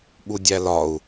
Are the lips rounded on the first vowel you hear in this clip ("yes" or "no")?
yes